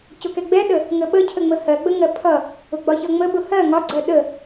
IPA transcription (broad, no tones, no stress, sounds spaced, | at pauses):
c ʊ k ɛ ɡ͡b ɛ ɗ ə | ŋ ə ɓ ə cʰ ə ŋ͡m ə h ɜ ɡ͡b ə ŋ ɜ pʰ ʌ | ʊ ɡ͡b ɒ ç ʌ ŋ͡m ə ɓ ʊ h ɜ ŋ ɒ ɡ͡ǀ ɜ ɗ ə